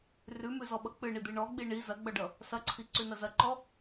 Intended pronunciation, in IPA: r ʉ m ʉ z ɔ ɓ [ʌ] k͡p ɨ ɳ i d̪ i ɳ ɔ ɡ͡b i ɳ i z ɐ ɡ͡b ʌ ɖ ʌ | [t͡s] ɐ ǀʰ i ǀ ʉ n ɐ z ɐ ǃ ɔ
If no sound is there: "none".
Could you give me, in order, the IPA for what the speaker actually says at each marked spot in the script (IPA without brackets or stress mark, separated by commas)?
ʌ, s